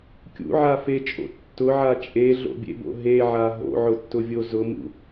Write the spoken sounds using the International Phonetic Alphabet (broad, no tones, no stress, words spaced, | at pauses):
kʲṵʕafet͡ʃʼo̰ tːʊʕa t͡ʃʼeɮo̰bʲḛbo̰ ɦeʕa ɦo̰ʕʊtːʊvʲo zʊmṵ